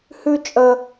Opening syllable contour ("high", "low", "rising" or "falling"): high